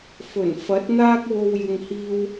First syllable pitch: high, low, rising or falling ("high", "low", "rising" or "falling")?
low